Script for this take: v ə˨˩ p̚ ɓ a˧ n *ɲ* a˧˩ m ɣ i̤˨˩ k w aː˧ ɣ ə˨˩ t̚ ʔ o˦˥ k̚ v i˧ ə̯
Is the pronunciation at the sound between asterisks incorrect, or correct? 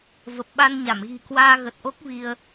correct